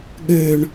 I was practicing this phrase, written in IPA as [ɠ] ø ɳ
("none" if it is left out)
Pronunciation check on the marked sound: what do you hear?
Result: ɠ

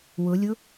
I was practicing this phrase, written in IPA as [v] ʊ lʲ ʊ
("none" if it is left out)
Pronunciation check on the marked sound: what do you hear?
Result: w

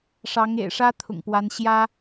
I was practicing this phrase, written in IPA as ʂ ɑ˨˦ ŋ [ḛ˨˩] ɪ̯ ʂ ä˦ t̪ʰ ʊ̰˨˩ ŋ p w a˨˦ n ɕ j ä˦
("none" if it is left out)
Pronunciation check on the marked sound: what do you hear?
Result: ḛ˨˩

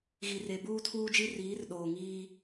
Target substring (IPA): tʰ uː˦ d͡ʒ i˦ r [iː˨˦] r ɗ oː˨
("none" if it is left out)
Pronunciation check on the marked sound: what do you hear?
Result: iː˨˦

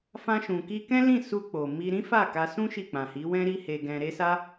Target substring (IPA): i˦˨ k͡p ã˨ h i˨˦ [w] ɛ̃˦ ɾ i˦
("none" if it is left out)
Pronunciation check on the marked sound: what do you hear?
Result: w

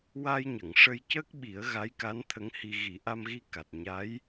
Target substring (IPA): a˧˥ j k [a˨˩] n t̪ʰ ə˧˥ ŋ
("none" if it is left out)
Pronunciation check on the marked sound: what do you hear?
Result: a˧˥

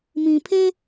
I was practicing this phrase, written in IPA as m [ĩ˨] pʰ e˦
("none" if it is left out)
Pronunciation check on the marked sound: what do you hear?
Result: ĩ˨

